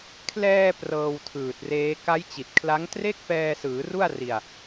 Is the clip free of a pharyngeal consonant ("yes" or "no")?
yes